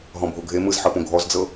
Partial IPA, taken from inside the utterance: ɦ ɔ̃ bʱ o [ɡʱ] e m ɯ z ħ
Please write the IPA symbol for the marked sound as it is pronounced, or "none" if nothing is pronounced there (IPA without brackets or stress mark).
ɡʱ